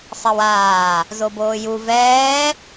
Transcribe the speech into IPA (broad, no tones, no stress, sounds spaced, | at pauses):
sˤ ɛ w aː | z o b oː j u v ɛː